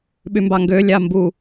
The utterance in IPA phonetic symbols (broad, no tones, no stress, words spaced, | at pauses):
ɓymbɑŋɡø lʲɑmbu